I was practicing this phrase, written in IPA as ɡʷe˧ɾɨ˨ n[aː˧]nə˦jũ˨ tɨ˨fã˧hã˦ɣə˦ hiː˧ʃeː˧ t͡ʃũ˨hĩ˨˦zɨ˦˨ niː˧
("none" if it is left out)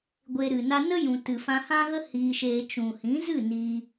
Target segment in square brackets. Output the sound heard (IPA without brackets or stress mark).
a˧